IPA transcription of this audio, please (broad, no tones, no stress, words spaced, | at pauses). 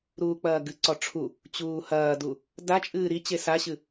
ɾuːk͡pɐːɡɨǀɔ ʈ͡ʂʰu | t͡ɕuːhɐːdu | da t͡ʃʼɨːɾit͡ɕe saɕɨ